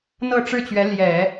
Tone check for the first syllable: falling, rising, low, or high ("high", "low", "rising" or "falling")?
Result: falling